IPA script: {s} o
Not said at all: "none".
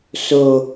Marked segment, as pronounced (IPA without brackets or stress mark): s